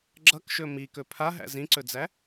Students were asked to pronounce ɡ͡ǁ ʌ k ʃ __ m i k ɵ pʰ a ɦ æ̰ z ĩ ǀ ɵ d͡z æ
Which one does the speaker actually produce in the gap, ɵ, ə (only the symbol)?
ɵ